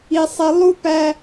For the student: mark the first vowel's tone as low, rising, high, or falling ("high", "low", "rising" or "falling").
high